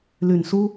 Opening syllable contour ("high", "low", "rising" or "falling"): low